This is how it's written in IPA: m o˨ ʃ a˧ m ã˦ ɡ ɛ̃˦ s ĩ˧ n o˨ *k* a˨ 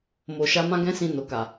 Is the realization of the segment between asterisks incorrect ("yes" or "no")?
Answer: no